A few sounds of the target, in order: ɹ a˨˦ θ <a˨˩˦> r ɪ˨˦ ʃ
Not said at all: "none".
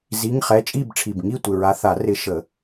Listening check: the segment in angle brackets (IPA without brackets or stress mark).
a˨˩˦